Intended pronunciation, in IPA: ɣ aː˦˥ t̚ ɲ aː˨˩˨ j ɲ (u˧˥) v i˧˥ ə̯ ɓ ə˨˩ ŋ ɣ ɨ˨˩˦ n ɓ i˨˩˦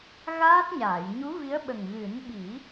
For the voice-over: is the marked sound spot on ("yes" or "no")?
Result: yes